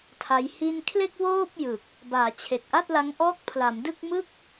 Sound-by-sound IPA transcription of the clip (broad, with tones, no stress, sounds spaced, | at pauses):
tʰ a˦˥ j h i˥˩ n kʰ l e˥˩ k̚ w oː˥˩ p̚ j ɯ˨˩ k̚ | b aː˩˦ t͡ɕʰ e˨˩ k̚ ʔ a˥˩ t̚ l a˦˥ ŋ ʔ ɔː˦˥ k̚ pʰ l a˩˦ m d ɯ˥˩ k̚ m ɯ˥˩ k̚